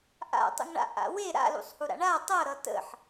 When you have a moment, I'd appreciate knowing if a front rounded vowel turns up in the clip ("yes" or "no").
no